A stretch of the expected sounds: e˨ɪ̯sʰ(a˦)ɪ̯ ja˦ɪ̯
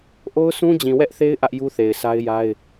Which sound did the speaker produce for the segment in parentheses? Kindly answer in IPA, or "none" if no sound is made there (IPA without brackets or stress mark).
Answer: a˦